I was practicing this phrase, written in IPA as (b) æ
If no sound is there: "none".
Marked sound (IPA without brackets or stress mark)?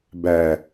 b